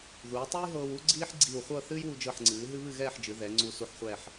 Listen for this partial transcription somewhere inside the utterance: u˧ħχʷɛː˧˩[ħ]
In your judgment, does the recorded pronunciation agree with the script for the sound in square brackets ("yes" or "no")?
yes